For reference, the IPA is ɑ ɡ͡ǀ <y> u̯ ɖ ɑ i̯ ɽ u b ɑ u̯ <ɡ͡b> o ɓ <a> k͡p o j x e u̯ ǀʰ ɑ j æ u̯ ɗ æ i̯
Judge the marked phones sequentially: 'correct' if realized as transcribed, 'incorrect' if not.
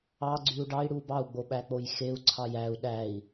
correct, correct, incorrect

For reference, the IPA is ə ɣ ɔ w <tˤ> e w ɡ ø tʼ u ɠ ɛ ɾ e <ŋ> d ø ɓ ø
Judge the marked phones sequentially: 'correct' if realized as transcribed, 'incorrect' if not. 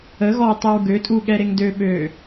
correct, correct

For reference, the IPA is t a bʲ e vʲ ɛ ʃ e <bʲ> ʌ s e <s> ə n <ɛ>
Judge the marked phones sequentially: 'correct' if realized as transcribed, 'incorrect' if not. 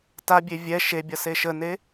correct, incorrect, incorrect

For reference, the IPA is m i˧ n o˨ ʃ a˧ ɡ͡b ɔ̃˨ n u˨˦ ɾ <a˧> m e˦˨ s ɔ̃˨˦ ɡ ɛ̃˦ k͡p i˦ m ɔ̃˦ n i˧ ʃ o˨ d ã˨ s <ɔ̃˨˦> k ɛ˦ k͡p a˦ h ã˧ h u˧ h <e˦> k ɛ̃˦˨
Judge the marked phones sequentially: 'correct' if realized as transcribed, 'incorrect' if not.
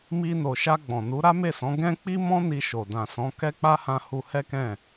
incorrect, correct, incorrect

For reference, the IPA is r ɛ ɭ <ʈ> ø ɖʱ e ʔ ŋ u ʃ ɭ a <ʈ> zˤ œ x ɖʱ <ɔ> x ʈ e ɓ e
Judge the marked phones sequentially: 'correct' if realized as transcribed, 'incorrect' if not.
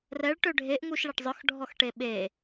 correct, correct, correct

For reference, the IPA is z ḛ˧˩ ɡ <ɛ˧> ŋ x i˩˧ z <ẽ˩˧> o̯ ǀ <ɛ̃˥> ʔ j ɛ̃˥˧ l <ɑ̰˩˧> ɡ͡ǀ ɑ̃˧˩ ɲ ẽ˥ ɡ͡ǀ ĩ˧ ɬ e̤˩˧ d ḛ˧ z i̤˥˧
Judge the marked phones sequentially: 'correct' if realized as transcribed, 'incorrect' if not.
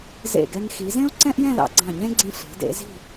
correct, incorrect, correct, correct

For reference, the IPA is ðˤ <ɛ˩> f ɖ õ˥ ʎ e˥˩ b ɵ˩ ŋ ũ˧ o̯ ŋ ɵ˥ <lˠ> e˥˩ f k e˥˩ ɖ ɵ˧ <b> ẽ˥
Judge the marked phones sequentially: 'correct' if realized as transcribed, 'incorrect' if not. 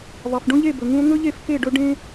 incorrect, incorrect, incorrect

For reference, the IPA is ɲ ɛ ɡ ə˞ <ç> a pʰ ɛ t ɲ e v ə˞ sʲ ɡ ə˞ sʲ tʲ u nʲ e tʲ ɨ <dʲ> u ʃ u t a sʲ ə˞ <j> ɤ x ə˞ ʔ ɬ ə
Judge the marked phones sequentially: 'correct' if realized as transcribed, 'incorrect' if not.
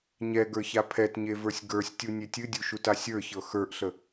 correct, correct, incorrect

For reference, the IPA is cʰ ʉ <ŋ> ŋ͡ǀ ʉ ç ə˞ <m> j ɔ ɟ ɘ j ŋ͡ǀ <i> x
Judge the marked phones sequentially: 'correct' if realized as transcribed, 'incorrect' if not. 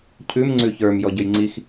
incorrect, correct, correct

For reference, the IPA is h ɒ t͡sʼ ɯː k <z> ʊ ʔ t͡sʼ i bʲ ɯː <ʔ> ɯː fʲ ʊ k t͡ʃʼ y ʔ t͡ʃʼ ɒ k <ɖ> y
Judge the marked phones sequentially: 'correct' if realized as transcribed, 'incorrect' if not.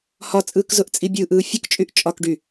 correct, correct, correct

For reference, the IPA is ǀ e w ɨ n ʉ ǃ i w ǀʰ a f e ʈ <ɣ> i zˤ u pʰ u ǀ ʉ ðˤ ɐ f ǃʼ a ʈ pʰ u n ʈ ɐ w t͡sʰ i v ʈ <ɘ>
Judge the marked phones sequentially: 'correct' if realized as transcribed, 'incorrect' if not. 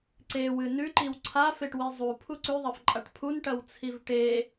incorrect, incorrect

